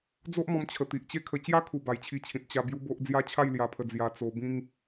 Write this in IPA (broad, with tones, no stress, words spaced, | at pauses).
d͡zo˦ʔmɔ̃˧m t͡ɕʰə˨˩t̪i˨ʔ t͡ɕe˦kʰə˧ t͡ɕja˦kʰu˨˩ ba˨˩jt͡ɕʰi˧t͡ɕʰĩ˨t̚ t͡ɕa˧ bju˦bo˦ʔ d͡zja˦t͡ɕʰa˥˧jlja˧pʰə˧ d͡zja˧ t͡so˧bĩ˦ŋ